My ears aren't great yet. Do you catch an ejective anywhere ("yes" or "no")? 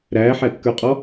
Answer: yes